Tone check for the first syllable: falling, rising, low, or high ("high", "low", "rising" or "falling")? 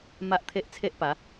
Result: high